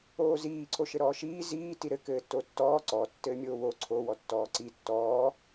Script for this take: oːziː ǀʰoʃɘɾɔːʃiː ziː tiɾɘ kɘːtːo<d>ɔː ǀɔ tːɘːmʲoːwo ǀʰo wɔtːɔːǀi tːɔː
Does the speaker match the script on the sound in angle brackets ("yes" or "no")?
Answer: no